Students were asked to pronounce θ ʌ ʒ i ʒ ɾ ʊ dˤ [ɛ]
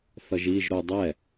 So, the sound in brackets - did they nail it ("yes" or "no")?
yes